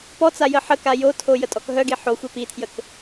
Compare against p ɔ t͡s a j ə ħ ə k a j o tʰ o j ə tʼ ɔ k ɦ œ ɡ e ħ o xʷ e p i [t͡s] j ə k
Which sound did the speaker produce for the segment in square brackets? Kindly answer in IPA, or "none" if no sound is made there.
tʰ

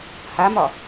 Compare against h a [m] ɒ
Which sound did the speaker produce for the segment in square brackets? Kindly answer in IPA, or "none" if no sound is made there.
m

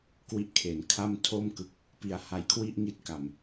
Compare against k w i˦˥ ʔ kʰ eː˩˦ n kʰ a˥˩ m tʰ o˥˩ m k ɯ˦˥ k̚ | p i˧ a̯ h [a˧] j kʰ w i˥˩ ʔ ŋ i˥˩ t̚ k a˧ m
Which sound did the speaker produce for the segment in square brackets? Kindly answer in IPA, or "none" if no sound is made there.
a˦˥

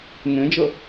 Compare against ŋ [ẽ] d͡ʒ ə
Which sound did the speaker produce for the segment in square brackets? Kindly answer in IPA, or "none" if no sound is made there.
ẽ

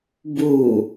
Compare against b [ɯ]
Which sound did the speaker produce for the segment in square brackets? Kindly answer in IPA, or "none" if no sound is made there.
u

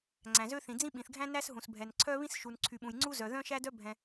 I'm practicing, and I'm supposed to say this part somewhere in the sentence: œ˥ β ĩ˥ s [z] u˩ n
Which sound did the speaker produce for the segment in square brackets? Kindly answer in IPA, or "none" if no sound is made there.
ʃ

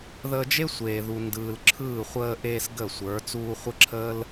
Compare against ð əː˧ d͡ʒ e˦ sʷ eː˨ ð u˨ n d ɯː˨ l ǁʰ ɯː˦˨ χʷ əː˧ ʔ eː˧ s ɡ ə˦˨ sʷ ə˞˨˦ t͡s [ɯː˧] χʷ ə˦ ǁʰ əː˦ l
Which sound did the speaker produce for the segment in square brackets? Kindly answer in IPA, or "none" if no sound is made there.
uː˧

